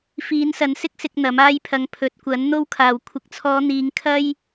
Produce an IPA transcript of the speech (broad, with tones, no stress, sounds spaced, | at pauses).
f iː˨˧ n s ɐ˨˥ n s ɪ˥ k̚ s ɪ˧ k̚ n̪ ɐ˨˥ m aː˥ j pʰ ɐ˧ ŋ pʰ ɵ˨ t̚ kʷ ɐ˨˥ n n̪ o˥ w kʰ aː˨ w kʷʰ ɪ˨ k̚ t͡sʰ ɔː˨˧ n̪ iː˨˧ ŋ kʰ ɐ˥ j